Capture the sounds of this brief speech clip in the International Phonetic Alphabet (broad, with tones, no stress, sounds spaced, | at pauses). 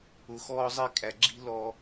ʊ˨ x ɔː˦ zˤ i˦ kʼ æ˨ ɡ͡ǁ i̤˦ l ɔ˦